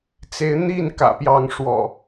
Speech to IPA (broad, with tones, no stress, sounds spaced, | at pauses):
t͡s e˨˦ ɪ̯ n̪ i˥˨ n k ä̰˨˩ p j ɑ˨˦ ŋ ʂ w ɔ̰˨˩